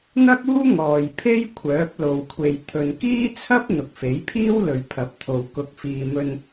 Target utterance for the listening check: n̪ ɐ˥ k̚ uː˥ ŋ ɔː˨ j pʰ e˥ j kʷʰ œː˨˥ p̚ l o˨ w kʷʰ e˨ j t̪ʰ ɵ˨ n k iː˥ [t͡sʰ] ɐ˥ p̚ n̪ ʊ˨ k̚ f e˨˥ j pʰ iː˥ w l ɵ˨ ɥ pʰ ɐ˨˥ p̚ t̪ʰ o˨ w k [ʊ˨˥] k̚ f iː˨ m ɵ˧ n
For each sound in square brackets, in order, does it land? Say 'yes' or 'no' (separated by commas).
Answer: yes, yes